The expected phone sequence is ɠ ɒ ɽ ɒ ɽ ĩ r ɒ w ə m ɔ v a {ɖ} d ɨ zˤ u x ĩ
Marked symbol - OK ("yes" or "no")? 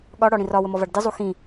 yes